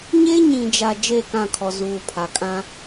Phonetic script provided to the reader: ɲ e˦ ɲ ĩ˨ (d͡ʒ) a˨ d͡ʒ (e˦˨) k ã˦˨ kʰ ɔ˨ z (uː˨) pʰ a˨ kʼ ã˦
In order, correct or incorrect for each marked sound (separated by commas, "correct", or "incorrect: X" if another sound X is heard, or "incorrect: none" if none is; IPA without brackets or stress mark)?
correct, correct, correct